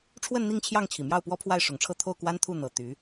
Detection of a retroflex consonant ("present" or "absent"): present